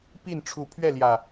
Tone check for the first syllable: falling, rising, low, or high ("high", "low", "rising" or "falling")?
falling